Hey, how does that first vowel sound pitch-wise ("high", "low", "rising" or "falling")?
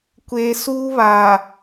low